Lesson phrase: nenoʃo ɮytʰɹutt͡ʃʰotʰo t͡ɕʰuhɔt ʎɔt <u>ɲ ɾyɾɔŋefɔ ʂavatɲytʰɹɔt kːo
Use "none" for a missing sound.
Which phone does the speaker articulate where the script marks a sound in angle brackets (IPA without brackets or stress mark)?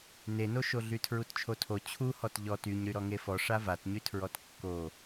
y